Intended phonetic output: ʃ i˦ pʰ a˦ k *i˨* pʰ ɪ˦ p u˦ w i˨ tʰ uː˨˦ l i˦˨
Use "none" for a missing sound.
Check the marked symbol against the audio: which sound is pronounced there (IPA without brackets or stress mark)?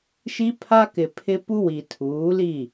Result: ɪ˨